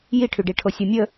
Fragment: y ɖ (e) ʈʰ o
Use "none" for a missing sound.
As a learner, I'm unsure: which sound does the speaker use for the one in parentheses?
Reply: i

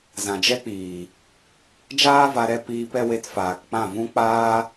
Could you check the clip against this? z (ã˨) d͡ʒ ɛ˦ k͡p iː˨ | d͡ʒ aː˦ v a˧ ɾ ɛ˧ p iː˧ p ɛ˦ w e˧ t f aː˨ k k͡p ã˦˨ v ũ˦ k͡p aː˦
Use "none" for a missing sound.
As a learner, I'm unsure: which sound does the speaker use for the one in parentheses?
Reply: ã˨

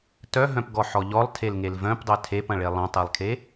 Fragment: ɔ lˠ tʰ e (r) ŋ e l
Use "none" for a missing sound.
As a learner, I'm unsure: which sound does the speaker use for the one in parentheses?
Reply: l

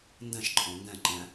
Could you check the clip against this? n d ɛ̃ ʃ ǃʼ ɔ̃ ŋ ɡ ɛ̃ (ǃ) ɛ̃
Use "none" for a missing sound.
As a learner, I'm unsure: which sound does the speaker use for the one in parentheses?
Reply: ǃ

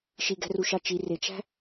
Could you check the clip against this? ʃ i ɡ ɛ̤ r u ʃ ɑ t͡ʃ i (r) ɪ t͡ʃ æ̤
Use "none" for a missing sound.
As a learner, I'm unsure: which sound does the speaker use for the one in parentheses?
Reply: r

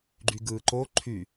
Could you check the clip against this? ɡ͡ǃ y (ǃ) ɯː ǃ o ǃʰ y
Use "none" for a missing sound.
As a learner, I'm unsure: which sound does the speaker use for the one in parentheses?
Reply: ɡ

